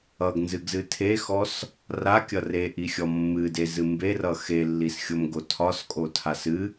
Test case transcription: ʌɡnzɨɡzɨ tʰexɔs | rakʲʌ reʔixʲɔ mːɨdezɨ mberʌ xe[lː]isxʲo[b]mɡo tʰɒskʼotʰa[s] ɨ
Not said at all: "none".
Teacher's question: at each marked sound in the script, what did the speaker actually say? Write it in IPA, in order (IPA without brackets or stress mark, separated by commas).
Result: lː, none, s